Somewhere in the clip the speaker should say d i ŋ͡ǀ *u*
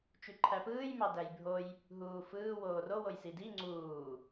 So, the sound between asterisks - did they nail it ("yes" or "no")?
no